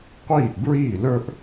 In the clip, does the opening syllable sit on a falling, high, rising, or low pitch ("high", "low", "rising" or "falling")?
falling